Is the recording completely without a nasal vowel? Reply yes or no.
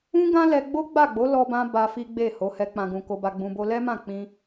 no